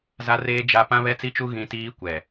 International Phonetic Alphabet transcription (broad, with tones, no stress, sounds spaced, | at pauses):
z a˦ r eː˦ d͡ʒ a˦ p ã˦ β ɛ˦ t͡s i˦ t͡ʃ u˦ ɣ ĩ˦ t iː˦ kʷ ɛ˨